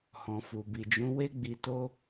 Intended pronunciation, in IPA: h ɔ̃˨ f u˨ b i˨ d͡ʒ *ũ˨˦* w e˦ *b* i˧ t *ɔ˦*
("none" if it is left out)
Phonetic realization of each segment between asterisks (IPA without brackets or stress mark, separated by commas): ũ˨˦, ɡ͡b, o˦